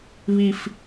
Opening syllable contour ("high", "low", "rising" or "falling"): high